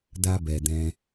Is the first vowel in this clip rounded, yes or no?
no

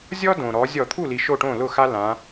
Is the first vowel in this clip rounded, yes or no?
yes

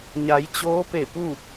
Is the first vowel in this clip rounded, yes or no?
no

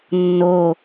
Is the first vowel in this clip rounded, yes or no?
yes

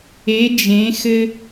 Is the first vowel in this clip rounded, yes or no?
no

